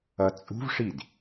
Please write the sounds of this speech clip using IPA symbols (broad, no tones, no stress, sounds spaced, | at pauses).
ʌ t͡sʼ ṳ v ʂ i d